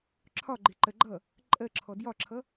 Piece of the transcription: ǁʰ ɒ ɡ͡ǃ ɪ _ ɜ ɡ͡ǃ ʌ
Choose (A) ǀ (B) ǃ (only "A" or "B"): B